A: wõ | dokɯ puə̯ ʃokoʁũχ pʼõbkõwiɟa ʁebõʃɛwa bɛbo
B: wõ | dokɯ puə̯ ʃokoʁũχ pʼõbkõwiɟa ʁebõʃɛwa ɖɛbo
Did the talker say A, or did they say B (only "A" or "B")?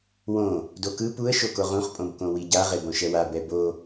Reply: A